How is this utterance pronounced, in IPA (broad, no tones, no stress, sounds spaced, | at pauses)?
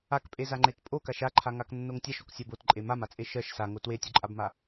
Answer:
a k pʼ e z a ŋ͡ǃ e t pʼ o k a ʃ a ǃʰ a ŋ a k nː o ŋ tʲ a ʃ o k sʲ a b o t ǃʼ e m a m a t͡sʼ e ʃ ɜ ʃ s a ŋ o t w e tʲ o ǃʼ a b m a